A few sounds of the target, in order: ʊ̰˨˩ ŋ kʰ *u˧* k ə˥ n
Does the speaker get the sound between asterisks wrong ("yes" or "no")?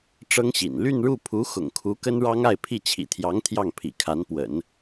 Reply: yes